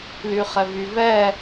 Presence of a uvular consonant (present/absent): present